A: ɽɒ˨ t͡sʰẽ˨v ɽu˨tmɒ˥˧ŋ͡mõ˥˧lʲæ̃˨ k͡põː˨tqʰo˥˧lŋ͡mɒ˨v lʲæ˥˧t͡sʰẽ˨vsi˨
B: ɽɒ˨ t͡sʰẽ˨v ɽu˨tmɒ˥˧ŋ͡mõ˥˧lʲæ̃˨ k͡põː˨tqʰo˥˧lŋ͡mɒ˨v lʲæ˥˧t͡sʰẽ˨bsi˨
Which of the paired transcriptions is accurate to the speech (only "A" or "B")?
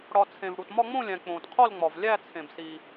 B